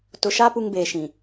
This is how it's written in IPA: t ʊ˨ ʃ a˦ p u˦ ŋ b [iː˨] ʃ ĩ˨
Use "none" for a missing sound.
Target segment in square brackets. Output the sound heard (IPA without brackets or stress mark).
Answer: eː˨